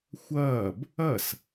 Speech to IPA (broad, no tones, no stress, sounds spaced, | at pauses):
xʷ ɐː b | ɐ s